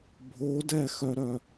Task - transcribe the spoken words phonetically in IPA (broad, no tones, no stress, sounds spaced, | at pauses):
bʱ o d ɛ x œ ɾ œ